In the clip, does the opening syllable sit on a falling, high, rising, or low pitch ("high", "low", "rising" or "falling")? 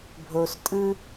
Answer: low